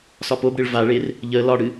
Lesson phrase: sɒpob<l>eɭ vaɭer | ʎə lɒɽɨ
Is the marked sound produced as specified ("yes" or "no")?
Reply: no